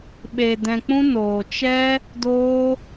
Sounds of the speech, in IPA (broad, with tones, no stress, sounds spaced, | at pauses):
ɓ e˧ d ɛ̃˧ k͡p ũ˦ n oː˧ t͡ʃ ɛ˦ | d oː˦